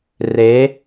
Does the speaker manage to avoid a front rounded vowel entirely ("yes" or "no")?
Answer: yes